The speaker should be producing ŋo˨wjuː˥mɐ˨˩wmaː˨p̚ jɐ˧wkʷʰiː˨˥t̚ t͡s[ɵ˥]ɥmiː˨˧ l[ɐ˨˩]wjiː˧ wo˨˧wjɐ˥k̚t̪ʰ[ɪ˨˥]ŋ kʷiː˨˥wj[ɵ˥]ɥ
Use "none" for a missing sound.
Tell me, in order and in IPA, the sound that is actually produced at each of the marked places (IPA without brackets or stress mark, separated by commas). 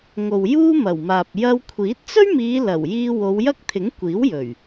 ɵ˥, ɐ˨˩, ɪ˨˥, ɵ˨˩